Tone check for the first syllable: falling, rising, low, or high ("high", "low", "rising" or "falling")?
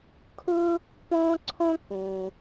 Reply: high